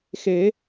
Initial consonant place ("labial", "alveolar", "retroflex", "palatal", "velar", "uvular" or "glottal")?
velar